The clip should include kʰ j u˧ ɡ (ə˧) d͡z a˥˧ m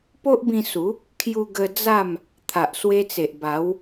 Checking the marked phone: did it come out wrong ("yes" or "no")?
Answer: no